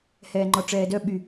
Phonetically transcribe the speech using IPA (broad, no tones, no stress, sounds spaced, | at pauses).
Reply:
h ɛː ŋ͡ǃ ɔ ʈ͡ʂ ɛː d œ ɓ y